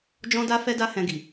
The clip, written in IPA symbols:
d͡ʒ ɔ̃˦ d a˦ f ɛ˦ d a˦ h ɛ̃˧ ɡ i˨

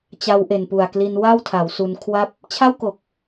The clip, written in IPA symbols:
t͡ɕ a˧ w ʔ e˨˩ n p u˨˩ a̯ k l i˧ n w a˥˩ w tʰ a˩˦ w s u˧ n kʰ w a˥˩ p̚ | t͡ɕʰ a˥˩ w k o˨˩ k̚

